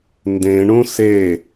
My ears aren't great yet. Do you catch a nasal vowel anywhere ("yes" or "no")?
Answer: yes